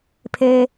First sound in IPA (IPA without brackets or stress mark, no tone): pʰ